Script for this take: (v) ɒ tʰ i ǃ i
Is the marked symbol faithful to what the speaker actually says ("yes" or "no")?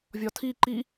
no